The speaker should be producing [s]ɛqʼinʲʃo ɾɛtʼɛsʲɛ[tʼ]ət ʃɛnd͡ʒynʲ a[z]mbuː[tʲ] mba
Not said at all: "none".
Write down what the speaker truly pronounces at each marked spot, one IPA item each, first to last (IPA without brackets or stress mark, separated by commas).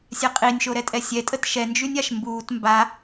sʲ, tʼ, ʃ, t